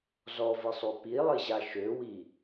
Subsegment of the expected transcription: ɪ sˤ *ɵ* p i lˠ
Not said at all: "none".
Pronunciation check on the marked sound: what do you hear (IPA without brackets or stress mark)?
ø